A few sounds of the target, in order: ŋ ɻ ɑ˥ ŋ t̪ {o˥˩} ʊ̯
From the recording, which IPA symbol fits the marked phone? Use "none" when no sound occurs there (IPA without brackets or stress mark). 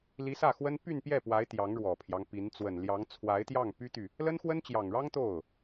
o˥˩